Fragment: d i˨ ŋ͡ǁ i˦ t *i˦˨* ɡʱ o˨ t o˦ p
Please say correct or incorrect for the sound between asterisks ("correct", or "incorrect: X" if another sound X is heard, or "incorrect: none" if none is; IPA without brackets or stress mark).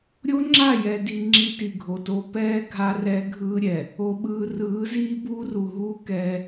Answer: incorrect: i˨